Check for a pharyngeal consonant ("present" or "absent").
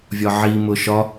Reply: present